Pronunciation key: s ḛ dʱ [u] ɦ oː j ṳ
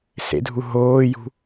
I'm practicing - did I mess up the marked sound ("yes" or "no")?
no